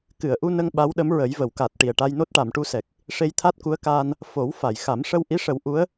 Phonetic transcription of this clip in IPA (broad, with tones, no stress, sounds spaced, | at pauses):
k ɨ˨˩˨ ə̯ ʔ u˧ n ə˧ ŋ ɓ a˧˥ w ɗ ə˧˥ m ɹ ə˨˩˦ j v ə˨˩˨ w k a˨˩ t̚ ʈ i˨˩ ə̯ ʈ a˧ j n o˦˥ t̚ ʈ a˨˩˨ m ʈ u˧ s ɛ˨˩ k̚ | ʂ e˧ j t̪ʰ a˦˥ t̚ k u˧˥ ə̯ k aː˧ n | f o˨˩˦ w f a˨˩˨ j x a˨˩˦ m ʂ ə˧ w ʔ i˧˥ ʂ ə˨˩˦ w ʔ u˧˥ ə̯